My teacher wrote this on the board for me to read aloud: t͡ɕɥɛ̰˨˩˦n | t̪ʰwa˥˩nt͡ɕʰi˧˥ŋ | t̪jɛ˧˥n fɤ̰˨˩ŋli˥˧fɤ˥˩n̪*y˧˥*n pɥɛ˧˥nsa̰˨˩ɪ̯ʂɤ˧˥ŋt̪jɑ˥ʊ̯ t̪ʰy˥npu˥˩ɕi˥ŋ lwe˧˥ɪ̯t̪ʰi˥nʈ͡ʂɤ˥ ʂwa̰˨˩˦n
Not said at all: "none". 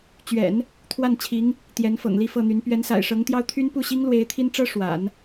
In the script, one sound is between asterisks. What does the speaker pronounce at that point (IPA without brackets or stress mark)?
y˧˥